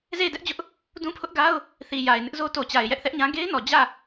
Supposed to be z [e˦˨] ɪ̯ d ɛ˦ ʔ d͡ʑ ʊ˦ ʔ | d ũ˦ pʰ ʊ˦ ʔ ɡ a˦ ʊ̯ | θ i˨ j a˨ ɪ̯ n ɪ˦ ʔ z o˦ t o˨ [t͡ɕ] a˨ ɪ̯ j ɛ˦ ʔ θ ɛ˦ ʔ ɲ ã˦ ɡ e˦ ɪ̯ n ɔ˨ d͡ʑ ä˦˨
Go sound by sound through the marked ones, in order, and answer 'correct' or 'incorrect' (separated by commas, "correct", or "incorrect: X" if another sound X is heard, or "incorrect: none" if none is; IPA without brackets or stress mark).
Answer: correct, correct